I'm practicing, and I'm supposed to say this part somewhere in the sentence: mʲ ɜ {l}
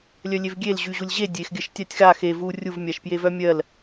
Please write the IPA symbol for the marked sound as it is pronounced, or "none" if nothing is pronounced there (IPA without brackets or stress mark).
l